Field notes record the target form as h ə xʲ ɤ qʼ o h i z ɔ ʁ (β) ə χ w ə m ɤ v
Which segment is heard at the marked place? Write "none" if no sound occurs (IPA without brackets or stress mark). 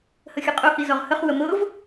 h